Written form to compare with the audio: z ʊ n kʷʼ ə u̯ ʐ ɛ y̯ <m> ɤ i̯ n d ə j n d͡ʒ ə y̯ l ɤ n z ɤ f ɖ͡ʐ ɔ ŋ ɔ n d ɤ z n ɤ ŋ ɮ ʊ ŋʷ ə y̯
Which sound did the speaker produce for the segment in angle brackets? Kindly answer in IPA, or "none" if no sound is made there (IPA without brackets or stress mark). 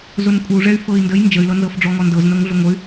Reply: f